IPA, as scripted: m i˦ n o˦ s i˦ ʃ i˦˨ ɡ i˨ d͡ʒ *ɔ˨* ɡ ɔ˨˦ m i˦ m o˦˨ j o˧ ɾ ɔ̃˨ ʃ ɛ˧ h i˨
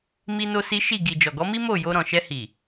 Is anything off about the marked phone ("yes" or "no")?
no